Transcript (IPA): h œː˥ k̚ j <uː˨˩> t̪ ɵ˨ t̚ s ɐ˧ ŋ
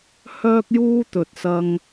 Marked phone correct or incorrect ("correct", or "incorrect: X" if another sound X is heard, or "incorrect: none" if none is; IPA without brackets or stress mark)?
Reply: incorrect: uː˥